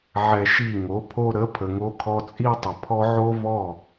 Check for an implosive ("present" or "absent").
absent